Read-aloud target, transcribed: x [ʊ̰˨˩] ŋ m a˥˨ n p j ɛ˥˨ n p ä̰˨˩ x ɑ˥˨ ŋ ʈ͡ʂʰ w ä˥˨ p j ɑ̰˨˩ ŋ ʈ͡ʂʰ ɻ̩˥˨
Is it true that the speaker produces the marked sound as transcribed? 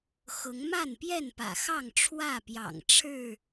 no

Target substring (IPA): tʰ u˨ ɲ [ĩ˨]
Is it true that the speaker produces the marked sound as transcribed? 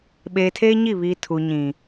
yes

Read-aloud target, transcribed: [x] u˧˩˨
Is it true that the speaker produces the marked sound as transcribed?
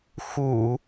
yes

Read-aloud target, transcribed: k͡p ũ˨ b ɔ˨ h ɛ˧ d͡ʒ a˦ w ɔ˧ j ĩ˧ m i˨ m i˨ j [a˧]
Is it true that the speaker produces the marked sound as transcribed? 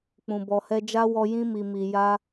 yes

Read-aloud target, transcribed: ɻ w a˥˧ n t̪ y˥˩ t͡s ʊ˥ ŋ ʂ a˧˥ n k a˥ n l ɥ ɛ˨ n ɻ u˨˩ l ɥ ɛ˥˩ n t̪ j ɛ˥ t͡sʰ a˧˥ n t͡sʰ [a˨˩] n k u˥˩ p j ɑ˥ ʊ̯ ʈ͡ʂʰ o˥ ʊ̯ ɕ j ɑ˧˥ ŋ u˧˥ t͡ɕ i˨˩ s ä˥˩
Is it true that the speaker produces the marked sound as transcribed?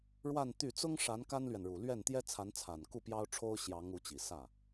yes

